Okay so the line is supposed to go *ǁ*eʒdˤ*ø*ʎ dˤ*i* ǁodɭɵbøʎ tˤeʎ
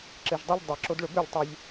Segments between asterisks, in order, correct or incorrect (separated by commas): correct, correct, correct